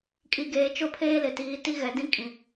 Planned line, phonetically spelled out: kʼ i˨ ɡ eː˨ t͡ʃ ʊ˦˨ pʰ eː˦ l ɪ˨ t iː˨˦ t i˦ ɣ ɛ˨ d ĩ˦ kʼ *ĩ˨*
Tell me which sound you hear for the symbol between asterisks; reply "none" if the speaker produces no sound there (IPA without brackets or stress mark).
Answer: ĩ˨